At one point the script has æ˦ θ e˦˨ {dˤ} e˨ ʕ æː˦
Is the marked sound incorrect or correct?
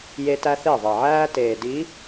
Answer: incorrect